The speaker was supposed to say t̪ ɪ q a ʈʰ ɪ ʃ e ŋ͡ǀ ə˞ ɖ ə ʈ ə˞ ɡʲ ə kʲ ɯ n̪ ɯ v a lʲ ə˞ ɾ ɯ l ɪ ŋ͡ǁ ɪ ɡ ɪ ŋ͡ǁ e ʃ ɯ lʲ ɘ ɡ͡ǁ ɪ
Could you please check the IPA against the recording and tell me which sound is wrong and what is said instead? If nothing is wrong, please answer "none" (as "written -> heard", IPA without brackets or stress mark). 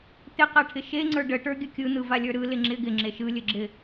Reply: none